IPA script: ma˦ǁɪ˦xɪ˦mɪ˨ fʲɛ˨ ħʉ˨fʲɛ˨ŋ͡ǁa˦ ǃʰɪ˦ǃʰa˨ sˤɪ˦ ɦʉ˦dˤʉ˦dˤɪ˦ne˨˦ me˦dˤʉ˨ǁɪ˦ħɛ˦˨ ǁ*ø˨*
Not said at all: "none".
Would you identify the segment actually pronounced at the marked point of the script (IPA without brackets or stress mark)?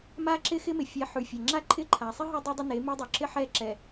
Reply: ɛ˨